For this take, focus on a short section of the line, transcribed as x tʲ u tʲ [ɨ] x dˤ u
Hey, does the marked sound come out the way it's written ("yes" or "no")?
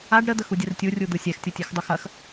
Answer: no